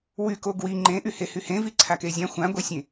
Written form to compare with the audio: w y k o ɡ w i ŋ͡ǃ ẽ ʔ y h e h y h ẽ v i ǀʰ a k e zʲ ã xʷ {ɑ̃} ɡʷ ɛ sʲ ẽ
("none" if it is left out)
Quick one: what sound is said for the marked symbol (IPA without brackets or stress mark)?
ã